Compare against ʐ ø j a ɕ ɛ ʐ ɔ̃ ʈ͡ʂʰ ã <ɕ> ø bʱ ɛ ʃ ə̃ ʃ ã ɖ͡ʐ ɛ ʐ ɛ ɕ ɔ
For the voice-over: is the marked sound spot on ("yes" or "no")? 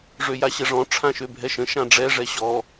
no